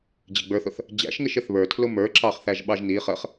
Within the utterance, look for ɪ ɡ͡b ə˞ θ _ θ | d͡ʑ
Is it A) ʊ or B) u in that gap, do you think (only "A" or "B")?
A